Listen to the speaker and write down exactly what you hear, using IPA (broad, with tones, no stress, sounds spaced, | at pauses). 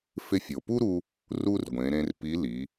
f ɪ˧ fʲ o˩ p u˥ ɾ u˧ | r u˥ r ɡʷ ẽ˩˧ ɾ ẽ˧ r p i˧˥ l i˩˧